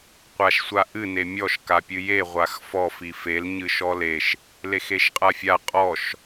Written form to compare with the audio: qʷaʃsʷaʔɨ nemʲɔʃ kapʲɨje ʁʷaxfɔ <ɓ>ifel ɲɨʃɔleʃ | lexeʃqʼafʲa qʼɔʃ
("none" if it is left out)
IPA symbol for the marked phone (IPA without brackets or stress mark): f